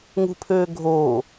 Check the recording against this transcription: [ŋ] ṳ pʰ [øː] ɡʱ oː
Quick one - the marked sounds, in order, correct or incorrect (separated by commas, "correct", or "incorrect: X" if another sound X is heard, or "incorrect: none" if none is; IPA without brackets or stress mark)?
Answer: correct, correct